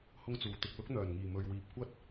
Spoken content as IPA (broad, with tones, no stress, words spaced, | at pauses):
hʊ˥ŋt͡suː˨ t̪ɪ˨k̚lʊ˥k̚ n̪œː˨˩nŋiː˨˩ mɵ˨ɥwiː˨p̚ kʷɐ˥t̚